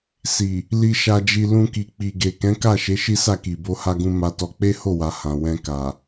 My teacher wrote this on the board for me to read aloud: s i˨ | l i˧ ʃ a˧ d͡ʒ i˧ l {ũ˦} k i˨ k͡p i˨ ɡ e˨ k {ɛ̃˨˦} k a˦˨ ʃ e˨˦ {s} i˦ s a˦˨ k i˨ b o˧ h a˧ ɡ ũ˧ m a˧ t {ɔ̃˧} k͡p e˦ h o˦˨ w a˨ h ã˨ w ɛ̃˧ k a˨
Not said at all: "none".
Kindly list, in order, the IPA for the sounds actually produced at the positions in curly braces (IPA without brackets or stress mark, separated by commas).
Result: ũ˧, ɛ̃˨˦, ʃ, ɔ˧